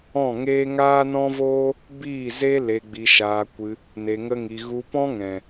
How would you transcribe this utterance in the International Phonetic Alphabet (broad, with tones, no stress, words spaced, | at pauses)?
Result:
ɔ̃˦˨ŋeː˦ ŋaː˦nɔ̃˦voː˦ | biː˦˨ze˦ le˧ɡ͡bi˧ʃaː˧kʷɨ˧ | ne˧ŋə˦ŋi˧ ɣu˧ pɔ̃˦ŋɛ̃˨